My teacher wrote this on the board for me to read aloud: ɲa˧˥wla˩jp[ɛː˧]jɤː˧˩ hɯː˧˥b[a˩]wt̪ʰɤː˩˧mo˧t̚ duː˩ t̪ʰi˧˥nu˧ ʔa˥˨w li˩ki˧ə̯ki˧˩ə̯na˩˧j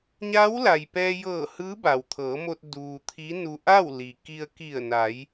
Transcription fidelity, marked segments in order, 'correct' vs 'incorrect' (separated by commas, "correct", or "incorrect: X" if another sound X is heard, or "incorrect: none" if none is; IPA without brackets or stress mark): correct, correct